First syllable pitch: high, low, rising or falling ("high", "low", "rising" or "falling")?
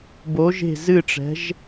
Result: rising